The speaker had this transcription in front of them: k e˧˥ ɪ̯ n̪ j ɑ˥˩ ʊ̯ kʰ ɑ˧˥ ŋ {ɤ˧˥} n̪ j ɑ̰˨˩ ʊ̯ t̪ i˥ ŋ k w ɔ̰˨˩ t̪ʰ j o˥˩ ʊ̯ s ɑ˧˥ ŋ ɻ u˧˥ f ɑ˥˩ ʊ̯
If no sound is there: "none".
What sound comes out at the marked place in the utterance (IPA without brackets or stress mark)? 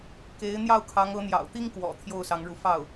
ɤ˧˥